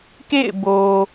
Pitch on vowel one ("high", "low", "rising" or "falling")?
falling